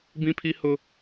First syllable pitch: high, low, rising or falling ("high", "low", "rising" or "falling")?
high